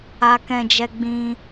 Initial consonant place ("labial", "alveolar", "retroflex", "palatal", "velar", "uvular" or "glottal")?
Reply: velar